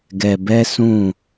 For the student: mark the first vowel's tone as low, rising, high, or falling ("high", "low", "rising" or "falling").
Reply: low